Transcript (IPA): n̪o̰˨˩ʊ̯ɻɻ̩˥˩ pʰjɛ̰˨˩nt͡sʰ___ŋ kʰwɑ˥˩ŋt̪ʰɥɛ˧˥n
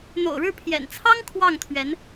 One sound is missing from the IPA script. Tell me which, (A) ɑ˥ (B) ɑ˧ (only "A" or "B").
A